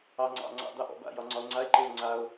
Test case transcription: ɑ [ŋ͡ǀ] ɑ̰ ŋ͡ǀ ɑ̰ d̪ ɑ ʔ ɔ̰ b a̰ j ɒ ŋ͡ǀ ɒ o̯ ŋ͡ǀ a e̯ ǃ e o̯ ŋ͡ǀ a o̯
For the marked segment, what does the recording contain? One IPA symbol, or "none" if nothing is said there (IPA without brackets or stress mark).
ŋ͡ǀ